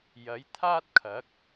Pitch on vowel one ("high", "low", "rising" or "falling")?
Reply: rising